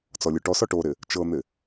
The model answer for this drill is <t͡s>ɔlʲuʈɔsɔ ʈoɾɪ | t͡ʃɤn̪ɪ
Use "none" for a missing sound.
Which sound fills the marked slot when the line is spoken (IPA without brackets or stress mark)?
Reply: t͡s